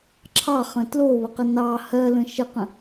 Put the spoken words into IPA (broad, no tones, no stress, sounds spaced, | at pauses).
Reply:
ǁʰ ɑ χ ə̃ t l o β ə q ə n ɑ h ɜ l ə̃ ʃ ə q ə̃